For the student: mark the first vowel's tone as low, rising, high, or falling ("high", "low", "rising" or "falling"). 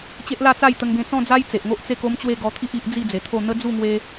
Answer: high